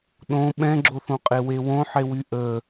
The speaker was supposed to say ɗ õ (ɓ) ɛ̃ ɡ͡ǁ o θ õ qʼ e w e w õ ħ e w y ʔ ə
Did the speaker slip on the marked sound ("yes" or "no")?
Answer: no